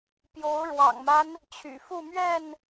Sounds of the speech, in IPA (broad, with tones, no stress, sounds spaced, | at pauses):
p j o˨˦ ʊ̯ ɻ w ɑ̰˨˩ ŋ m a˦ n | t͡ɕʰ y̰˨˩ f u˥˨ m ɥ ɛ˥˨ n